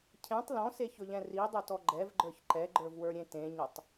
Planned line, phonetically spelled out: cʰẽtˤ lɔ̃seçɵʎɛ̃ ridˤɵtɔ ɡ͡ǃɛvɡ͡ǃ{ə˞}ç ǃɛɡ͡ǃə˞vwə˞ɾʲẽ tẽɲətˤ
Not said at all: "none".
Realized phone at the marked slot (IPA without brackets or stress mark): ə˞